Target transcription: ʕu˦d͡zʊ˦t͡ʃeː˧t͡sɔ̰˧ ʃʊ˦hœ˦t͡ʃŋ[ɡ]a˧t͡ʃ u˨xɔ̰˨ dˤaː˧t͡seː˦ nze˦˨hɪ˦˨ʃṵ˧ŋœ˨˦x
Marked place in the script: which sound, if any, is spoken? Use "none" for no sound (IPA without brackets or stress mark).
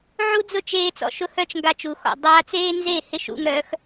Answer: ɡ